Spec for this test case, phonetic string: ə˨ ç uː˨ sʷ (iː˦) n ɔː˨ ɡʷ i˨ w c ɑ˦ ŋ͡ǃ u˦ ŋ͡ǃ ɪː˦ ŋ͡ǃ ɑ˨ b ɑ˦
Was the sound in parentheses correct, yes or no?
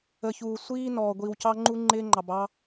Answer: yes